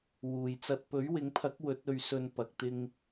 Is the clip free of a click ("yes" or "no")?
yes